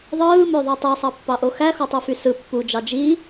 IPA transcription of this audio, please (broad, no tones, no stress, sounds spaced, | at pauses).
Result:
ðˤ ɯː m ø ðˤ ɯ tˤ i sˤ ɑ pː ɑ ʔ o x æ x o tˤ u f y s ɯ pː u d͡ʒ ɑ d͡ʒ i